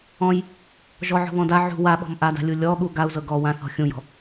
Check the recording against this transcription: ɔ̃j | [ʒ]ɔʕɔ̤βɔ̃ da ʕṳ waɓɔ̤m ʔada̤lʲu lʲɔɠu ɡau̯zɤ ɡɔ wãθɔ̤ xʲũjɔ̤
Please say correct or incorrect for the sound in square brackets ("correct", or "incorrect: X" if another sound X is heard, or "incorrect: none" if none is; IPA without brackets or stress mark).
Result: correct